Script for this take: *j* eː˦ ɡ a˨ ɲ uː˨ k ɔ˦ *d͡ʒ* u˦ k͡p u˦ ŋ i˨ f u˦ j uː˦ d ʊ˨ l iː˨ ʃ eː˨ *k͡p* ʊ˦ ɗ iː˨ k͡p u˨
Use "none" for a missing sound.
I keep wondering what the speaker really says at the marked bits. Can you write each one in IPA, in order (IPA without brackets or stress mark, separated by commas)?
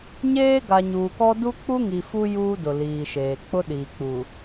ɲ, d, k͡p